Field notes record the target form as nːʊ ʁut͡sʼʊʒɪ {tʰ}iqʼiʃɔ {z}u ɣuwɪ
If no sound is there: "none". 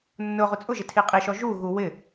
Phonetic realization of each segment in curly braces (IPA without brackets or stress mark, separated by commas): tʰ, ʒ